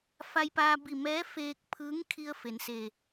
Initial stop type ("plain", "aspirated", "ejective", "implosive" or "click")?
plain